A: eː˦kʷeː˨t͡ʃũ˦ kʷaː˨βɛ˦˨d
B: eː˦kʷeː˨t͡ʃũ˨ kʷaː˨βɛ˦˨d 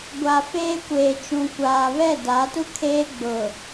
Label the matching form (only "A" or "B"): B